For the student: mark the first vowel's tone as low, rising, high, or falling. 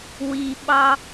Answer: low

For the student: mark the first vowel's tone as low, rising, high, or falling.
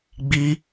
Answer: high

